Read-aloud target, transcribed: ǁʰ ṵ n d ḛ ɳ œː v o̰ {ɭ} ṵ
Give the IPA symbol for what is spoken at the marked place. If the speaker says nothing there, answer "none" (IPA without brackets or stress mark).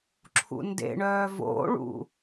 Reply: ɭ